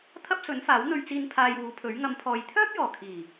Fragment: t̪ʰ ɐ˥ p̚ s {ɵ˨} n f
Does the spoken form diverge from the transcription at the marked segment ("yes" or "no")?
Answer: yes